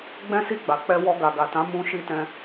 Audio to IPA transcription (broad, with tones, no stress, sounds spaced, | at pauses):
ɡ͡b ɛ̃˦ s i˦˨ ɡ͡b a˨ k͡p ɛ˧ w ɔ˧ ɡ a˨ ɡ a˨ t ã˨˦ m ũ˧ ʃ i˧ t ɛ̃˧